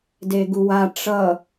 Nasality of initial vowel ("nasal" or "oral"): oral